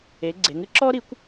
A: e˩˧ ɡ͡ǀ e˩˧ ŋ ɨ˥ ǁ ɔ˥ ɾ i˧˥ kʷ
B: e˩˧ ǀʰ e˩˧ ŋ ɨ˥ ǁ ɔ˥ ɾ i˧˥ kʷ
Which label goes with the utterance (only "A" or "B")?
A